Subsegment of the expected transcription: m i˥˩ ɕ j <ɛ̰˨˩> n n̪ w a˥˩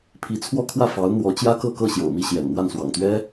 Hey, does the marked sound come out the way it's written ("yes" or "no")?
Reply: yes